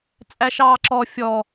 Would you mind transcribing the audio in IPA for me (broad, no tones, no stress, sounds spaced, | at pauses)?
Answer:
t͡sʼ æ ʃ ɑː ǁ ɔ fʲ ɔ